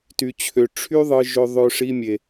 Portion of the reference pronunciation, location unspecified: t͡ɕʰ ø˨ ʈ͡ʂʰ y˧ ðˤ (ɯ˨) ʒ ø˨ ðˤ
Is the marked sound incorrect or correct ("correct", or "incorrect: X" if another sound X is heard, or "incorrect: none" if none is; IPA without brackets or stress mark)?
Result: correct